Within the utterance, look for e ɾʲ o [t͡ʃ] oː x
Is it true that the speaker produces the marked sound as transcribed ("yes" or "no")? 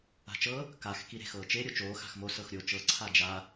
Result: yes